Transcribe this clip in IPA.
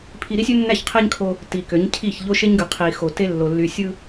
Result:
pʰi˨ ɾi˦sʲø˦nːæ˦˨çqʰe˦ɲ kʰo˦ | ti˨kø˨˦ɲcʰi˦˨ç ʎo˦ʃe˦ɲɡɯ˨qʰi˨ xo˨te˦lːo˨ lːy˨sʲɯ˦

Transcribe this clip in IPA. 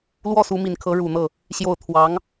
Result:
lwɔ˥˩su˧˥mi˨˩nkʰɤ˧˥ ɻu˨˩n̪ɤ˥˩ | ɕjo˥˩ʊ̯ t̪ʰwɑ˧˥ŋ

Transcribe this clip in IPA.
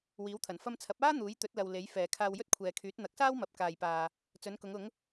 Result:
wiː˨˥wt̪ʰɐ˨˩n fɐ˧mt͡sʰɐ˨˥p̚aː˥ n̪uː˨˥jt̪ɵ˨˥t̚lɐ˨w le˨˥jfɛː˨ kʰaː˧wjɵ˥t̚kʷʰɛː˨kʰyː˨˥t̚ n̪ɐ˨˥k̚saː˥w mɐ˨p̚ kaː˨jpaː˨ | t͡sɵ˨˥nkʊ˨˥ŋʊ˨˥ŋ

